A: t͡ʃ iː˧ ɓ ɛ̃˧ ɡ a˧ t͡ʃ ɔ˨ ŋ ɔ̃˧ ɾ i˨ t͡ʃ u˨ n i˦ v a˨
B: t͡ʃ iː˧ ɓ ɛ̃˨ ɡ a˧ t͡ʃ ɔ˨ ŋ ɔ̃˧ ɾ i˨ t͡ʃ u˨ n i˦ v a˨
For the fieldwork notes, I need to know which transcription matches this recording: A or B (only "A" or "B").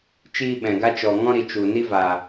B